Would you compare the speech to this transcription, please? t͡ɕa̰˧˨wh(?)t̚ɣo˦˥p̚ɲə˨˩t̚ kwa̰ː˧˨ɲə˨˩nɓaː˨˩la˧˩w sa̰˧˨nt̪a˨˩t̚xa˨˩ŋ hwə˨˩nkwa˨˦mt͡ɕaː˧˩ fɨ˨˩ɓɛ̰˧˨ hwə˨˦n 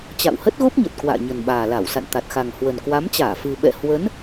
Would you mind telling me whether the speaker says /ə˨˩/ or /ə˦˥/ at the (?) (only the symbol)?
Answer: ə˦˥